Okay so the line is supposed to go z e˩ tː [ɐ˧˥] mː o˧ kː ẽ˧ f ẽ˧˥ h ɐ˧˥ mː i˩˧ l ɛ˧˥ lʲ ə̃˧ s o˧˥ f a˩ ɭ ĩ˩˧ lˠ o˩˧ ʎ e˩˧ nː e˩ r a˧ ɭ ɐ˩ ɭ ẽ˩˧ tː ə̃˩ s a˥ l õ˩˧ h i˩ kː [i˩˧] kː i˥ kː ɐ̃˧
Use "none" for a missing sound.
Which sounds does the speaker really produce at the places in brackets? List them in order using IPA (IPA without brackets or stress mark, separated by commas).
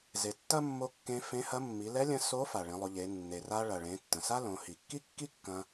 ɐ˥, i˥